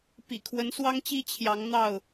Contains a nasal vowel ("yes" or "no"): no